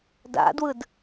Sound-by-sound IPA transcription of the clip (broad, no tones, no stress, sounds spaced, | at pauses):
d a̰ d w ɯ d